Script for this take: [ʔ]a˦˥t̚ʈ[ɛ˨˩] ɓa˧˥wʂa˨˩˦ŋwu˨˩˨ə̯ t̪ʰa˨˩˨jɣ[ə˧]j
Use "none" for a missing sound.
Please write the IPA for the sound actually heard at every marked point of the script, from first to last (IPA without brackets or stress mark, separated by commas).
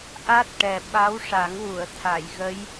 ʔ, ɛ˨˩, ə˧˥